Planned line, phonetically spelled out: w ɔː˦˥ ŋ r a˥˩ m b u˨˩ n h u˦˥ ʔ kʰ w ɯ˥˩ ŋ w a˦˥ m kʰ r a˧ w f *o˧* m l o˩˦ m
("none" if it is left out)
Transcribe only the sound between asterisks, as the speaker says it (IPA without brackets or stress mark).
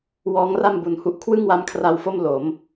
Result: o˥˩